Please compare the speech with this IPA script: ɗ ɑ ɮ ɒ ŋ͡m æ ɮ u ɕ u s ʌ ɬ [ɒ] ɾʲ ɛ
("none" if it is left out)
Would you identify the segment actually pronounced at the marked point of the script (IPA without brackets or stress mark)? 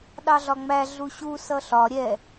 ɒ